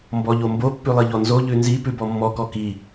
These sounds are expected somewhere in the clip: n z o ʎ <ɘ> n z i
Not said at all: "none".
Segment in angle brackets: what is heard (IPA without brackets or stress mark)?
ʉ